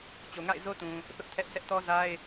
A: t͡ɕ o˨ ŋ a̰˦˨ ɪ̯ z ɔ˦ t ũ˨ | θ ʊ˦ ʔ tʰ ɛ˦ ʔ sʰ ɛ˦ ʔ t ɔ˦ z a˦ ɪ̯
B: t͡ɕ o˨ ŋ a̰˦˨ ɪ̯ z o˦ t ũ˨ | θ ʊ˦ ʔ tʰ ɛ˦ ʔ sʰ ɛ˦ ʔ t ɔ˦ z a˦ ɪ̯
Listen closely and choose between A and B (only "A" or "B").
B